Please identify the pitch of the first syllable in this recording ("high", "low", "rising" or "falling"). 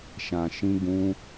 low